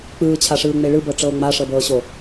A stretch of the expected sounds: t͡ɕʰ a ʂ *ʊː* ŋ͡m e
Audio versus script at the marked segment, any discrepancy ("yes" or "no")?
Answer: yes